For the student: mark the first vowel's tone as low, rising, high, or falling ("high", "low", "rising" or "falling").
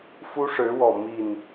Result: high